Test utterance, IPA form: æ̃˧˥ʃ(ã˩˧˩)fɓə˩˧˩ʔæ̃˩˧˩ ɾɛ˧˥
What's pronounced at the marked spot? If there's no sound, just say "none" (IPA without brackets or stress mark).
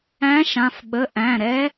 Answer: ã˩˧˩